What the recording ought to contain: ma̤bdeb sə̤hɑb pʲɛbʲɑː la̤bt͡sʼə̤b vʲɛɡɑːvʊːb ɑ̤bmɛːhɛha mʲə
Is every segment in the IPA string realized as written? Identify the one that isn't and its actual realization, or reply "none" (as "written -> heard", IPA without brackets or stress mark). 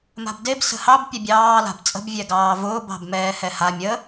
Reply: none